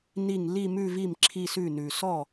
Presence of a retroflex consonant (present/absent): absent